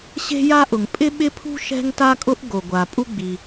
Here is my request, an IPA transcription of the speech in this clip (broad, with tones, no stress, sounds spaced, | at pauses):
ɕ e̤˥ j a˥ ʔ ʊ˩ ŋ pʼ ɪ˥ ɓ ɪ˥ pʰ ṳ˥ ʃ ɛ̤˥ ŋ t a˥ kʼ ʊ˥ ʔ ɡ o˩ ɡʷ a˩ pʼ u˥ ɡ͡b i˩